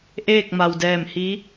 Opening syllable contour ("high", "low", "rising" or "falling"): falling